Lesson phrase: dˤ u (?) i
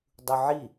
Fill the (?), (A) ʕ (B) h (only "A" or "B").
A